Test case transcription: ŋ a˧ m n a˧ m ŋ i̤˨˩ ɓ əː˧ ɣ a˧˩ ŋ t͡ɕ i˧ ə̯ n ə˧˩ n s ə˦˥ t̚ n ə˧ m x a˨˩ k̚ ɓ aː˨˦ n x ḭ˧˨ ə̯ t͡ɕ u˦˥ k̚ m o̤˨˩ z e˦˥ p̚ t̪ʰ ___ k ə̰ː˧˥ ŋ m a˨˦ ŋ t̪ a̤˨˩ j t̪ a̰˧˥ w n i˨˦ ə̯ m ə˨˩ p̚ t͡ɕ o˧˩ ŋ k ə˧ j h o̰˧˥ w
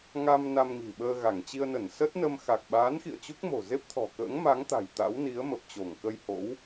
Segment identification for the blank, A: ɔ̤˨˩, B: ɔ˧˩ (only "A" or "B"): A